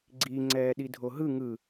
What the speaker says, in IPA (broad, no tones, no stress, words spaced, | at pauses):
ɡ͡ǀi ŋ͡ǀɛːɗidʱoɦɯ ŋɯ